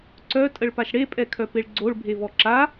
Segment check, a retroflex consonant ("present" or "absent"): present